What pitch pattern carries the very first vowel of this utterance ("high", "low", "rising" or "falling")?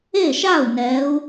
falling